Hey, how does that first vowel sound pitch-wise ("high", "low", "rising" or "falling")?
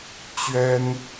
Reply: high